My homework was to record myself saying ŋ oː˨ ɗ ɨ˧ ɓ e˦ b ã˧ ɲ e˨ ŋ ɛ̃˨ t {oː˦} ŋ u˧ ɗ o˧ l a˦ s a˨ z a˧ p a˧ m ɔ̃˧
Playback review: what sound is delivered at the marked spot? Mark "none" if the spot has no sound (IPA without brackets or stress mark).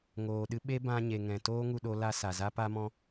oː˦